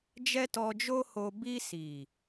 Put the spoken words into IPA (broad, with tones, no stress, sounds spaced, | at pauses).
d͡ʒ ɛ˦ t ɔ˧ d͡ʒ o˦ h o˧ b i˧ s i˨